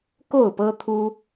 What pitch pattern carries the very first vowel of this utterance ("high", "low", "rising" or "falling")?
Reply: falling